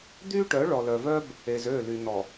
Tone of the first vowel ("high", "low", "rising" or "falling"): high